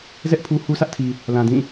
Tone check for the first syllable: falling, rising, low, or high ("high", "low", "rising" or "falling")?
high